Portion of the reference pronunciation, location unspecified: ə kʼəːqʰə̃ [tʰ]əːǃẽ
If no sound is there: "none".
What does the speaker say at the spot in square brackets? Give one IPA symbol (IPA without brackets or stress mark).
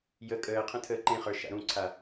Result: tʰ